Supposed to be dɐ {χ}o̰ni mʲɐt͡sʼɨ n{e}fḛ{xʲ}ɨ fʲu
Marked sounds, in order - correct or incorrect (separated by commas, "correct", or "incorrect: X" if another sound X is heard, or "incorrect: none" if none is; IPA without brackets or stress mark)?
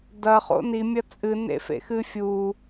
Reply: correct, incorrect: ḛ, incorrect: x